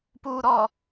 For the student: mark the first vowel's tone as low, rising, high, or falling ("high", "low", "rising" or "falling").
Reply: low